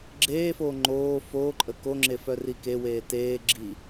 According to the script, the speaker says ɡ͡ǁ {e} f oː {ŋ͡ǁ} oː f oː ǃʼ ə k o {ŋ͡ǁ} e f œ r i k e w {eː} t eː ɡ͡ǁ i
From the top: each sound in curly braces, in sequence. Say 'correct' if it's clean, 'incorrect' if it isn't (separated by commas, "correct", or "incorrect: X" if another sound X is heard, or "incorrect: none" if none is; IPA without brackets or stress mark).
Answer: incorrect: eː, incorrect: ŋ͡ǃ, correct, correct